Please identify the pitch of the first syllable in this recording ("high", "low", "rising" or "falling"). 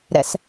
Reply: low